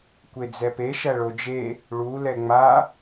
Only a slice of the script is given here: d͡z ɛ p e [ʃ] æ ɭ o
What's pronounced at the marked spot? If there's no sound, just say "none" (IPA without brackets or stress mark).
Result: ʃ